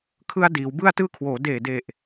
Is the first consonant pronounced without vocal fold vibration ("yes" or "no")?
yes